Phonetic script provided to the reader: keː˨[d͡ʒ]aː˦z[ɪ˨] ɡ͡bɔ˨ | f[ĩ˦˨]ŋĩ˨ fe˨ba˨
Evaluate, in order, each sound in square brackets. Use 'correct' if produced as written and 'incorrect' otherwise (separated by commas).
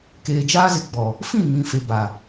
correct, correct, correct